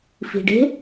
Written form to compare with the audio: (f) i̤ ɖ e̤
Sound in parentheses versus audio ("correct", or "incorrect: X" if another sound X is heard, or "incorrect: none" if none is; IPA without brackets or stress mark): correct